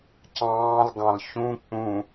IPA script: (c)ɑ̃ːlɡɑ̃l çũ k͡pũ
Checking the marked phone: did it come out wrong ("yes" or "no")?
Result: no